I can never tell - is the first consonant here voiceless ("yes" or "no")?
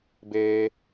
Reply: no